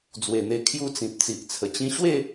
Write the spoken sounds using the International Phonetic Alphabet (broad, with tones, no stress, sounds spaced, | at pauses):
d͡z w e˨˩ n̪ e˧ kʰ j u˦ t͡s ĩ˨ p̚ t͡s i˨ ʔ t͡sʰ ə˨˩ t͡ɕ ĩ˧ ɕ w e˥˧